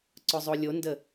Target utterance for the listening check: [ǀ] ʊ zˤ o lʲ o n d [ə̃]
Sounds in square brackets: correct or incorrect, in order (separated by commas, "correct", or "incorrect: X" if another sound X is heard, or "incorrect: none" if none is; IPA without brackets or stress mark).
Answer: correct, incorrect: ə